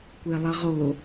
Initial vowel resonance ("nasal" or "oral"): oral